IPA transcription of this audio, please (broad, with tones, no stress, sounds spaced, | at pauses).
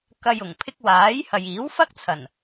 k ɐ˧ j ʊ˨˩ ŋ pʰ ɪ˥ k̚ w aː˨˥ j h ɐ˨ j iː˨˥ w f ɐ˥ k̚ t͡sʰ ɐ˨˩ n